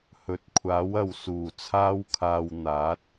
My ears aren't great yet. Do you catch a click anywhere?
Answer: no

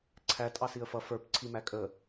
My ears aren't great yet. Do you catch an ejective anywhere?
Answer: yes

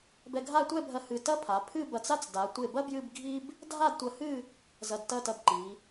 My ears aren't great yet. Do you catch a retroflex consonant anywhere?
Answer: no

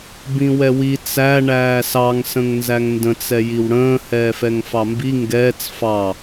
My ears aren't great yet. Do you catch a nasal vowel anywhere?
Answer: yes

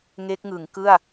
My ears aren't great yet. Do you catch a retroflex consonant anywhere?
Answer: no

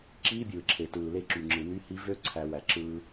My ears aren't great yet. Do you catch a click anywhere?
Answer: yes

